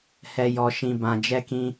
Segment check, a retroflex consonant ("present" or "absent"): absent